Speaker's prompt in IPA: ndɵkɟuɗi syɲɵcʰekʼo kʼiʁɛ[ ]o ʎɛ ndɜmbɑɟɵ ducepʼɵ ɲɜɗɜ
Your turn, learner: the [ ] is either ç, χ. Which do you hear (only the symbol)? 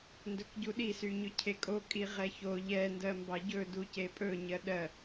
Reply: ç